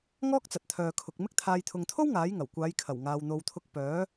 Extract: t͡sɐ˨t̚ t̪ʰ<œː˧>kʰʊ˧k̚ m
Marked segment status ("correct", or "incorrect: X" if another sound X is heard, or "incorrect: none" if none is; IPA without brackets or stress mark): correct